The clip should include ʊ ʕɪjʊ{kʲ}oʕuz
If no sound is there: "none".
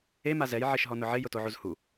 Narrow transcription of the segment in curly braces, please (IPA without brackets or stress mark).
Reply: t